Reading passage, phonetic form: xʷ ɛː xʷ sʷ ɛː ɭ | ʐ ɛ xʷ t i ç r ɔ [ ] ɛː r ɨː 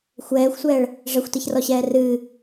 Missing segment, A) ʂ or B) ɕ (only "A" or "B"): B